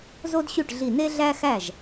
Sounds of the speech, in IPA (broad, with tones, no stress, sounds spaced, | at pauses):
z o˥ d ɕ y˥˩ ʈ ɮ i˧˩ n e˥ ɮ æ˥ x æ˥˩ ʒ